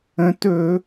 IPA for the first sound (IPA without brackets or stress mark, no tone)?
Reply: ə̃